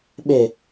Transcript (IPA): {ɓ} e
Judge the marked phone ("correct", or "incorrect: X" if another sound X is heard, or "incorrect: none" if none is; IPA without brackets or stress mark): correct